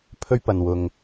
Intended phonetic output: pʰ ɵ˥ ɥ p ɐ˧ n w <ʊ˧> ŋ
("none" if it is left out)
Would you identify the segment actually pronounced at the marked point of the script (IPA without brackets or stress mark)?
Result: ʊ˧